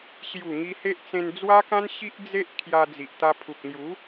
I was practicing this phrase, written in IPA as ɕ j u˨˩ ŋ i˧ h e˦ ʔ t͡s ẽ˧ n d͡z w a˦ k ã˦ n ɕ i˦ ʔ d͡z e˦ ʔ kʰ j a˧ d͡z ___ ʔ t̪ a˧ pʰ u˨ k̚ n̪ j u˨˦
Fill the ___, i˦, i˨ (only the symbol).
i˨